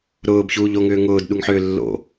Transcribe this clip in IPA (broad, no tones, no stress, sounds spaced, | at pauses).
ɾ ʊː b ç uː ʎ o ŋ ʏː ŋ ʊː d ɗ u ŋ ħ ʏː lː o̰